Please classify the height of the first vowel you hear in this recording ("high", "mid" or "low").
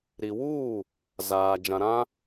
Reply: high